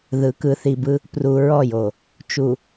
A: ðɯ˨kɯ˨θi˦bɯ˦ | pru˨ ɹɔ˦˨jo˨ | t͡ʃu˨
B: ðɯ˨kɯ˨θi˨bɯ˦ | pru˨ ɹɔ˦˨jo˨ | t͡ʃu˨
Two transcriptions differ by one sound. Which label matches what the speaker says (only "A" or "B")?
B